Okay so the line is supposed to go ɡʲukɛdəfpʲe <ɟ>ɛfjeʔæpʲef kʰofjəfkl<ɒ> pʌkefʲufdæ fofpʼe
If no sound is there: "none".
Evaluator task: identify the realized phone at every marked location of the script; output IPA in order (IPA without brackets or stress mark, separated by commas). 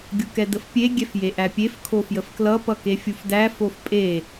ɡʲ, ʌ